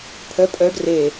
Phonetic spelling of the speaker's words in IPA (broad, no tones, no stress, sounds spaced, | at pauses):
pʰ œ pʼ œ ɖ r e